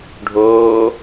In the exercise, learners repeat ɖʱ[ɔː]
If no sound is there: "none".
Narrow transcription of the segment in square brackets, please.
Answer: oː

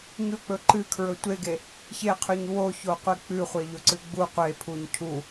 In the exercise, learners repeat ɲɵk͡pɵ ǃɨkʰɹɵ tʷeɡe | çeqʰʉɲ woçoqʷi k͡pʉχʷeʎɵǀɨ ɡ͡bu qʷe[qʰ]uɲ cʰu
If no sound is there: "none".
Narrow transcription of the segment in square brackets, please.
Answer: pʰ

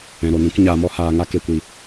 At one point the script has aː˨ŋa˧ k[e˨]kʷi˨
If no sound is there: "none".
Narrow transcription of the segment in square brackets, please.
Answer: e˨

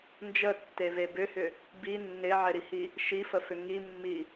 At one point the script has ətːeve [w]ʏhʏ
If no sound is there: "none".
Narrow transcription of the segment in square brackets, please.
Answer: b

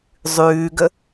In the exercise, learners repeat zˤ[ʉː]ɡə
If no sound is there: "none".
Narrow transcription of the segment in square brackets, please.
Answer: ʉː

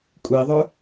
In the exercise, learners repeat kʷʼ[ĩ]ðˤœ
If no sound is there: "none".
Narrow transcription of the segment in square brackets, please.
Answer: i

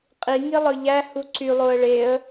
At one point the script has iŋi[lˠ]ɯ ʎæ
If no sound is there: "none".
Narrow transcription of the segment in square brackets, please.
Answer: lˠ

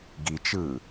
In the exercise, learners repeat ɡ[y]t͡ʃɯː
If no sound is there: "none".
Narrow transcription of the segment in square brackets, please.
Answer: i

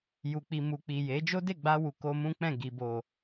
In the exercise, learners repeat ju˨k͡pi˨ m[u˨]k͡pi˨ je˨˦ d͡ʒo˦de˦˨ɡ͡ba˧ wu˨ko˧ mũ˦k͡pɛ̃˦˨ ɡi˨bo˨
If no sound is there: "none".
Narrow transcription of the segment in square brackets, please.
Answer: u˨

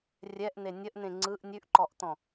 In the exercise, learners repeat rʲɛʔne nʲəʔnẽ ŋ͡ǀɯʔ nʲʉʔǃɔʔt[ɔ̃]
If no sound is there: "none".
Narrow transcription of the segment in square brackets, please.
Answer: ɔ̃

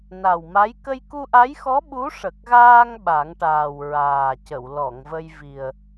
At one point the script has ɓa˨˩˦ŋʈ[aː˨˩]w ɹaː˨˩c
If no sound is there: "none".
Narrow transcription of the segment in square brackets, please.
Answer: aː˨˩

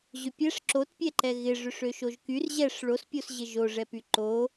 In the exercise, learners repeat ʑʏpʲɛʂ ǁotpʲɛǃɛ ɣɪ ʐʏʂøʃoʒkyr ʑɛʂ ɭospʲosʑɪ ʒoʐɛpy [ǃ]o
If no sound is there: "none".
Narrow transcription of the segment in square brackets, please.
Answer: ǃ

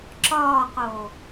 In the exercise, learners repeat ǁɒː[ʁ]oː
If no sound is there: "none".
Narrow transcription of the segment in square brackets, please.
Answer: q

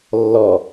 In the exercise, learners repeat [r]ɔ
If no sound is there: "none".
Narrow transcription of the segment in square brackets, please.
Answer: lː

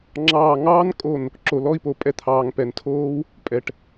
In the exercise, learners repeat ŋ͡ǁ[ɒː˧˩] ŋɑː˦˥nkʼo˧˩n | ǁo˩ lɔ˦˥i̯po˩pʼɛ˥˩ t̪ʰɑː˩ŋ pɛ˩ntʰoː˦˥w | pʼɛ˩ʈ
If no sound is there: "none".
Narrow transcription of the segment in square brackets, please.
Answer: ɑː˧˩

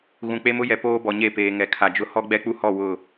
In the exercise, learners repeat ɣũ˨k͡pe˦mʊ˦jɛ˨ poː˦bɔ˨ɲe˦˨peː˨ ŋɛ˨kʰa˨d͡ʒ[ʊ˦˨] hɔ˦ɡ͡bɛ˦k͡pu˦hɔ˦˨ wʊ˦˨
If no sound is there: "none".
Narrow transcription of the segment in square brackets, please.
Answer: ʊ˦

